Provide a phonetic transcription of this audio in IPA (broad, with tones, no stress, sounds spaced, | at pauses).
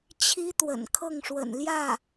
t͡ɕʰ i˥ t̪ w ə̰˨˩ n kʰ ɤ˥˩ ŋ ʂ w ə̰˨˩ n l j ä˥˩